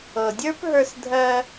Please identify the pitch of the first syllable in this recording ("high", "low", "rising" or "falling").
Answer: low